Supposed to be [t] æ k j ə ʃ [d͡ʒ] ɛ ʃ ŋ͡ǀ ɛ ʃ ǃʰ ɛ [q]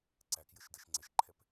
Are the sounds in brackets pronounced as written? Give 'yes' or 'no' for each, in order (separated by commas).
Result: no, no, no